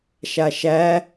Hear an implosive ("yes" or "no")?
no